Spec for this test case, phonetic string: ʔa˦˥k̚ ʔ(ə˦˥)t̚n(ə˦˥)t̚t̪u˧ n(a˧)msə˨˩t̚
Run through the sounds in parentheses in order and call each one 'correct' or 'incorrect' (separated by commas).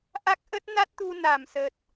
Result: correct, incorrect, incorrect